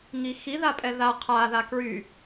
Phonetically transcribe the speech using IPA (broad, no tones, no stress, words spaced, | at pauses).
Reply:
ŋixi ðapʼɛða qʰa ðakɹy